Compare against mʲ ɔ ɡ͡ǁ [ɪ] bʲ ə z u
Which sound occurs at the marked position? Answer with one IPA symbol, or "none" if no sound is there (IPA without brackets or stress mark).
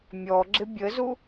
ɪ